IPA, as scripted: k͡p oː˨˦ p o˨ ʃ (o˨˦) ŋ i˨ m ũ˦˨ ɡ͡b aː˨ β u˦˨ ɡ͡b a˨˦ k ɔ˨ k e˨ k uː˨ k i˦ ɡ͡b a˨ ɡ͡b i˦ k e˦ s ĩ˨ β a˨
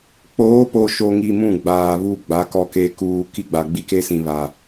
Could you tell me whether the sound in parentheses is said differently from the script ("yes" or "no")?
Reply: yes